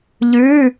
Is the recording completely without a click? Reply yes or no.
yes